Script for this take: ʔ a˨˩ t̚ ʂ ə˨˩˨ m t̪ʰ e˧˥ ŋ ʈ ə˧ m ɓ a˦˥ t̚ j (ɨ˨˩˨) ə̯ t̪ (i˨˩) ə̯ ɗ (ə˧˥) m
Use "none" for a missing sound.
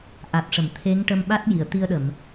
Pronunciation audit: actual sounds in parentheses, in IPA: i˨˩˨, i˧, ə˨˩˨

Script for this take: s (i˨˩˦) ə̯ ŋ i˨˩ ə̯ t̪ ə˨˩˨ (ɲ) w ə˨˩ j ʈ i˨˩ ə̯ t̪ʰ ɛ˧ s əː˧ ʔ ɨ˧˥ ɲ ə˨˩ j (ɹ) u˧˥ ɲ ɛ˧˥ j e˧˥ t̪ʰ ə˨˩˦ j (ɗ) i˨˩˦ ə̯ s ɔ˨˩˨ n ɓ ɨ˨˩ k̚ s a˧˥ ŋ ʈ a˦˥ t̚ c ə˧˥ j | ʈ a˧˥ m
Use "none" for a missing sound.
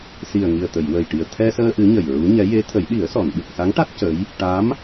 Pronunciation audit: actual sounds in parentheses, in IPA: i˨˩, j, ɹ, ɗ

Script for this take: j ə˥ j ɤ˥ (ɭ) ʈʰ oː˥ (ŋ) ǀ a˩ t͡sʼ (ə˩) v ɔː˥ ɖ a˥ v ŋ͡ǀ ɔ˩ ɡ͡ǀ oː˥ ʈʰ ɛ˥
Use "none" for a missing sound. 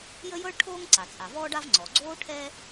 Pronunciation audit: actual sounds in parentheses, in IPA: ɭ, ŋ, a˩

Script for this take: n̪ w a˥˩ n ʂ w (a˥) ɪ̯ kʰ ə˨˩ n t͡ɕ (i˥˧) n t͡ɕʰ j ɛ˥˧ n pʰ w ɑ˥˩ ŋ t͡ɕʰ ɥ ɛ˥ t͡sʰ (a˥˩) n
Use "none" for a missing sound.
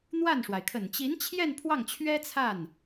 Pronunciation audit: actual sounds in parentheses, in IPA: a˩, i˧˥, a˥˩

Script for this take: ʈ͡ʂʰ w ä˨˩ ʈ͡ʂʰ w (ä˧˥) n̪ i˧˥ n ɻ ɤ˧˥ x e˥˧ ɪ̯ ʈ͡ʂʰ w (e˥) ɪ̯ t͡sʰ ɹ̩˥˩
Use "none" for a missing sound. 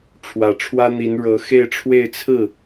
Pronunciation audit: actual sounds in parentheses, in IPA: ä˥, e˥˧

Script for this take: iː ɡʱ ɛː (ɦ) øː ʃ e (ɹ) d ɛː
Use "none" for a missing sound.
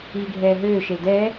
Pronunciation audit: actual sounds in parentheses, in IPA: ɦ, l

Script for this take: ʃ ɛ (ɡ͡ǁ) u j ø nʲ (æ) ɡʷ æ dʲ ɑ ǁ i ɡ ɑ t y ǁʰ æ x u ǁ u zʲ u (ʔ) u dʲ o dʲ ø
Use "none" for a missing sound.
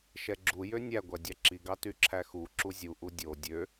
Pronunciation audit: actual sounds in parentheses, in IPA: ɡ͡ǁ, æ, ʔ

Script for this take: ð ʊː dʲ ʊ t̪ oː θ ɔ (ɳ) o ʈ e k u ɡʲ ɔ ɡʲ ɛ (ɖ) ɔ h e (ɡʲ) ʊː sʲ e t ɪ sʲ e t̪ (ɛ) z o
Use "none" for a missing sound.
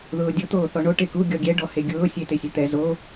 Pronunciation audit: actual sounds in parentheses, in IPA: ɳ, ɖ, ɡʲ, ɛ

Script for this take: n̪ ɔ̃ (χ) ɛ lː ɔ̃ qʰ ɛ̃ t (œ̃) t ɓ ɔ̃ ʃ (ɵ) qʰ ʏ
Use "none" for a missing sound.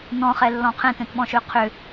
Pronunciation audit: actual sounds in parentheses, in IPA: χ, œ̃, ø

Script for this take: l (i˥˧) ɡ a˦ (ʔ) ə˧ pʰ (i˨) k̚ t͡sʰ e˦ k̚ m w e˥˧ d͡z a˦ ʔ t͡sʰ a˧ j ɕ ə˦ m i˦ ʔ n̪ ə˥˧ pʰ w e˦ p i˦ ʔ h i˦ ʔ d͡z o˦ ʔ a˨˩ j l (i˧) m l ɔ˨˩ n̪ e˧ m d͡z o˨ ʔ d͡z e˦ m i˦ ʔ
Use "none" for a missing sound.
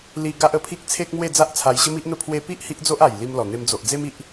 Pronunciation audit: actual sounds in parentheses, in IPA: i˦, ʔ, i˦, i˧

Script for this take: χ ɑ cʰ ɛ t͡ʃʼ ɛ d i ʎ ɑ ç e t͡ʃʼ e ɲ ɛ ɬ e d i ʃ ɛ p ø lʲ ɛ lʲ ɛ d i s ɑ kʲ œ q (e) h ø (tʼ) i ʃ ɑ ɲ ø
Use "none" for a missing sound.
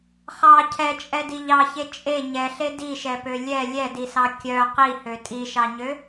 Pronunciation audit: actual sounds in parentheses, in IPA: i, tʼ

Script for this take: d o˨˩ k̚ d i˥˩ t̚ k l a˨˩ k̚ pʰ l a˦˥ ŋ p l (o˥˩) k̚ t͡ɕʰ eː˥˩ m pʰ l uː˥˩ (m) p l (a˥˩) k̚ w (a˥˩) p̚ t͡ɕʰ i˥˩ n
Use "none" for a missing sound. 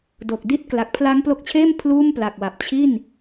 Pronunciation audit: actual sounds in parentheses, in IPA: o˦˥, m, a˨˩, a˨˩

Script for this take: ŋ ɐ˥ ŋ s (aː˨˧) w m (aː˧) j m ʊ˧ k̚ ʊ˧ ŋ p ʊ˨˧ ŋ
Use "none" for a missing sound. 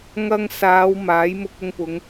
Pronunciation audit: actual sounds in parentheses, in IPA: aː˨˧, aː˨˥

